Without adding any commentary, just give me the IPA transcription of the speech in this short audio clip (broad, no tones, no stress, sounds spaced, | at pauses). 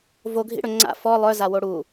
v o ɡʱ ḭ ɽ ɵ ŋ͡ǀ a̰ f ɔ lˠ œ z a w o ɽ u